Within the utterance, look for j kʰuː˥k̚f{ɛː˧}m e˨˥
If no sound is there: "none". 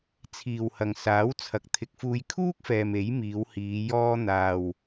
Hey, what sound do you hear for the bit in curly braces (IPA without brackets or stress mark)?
ɛː˨